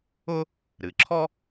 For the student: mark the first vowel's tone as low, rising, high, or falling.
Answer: high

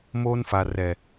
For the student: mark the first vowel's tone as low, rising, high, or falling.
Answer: high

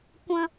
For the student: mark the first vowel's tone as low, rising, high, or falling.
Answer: high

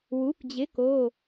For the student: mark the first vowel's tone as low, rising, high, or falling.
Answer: rising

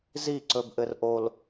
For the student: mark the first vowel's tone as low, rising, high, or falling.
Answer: falling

